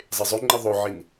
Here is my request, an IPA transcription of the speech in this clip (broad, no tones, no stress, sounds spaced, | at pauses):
zˤ e zˤ ø ŋ͡ǃ i ðˤ o ʕ i n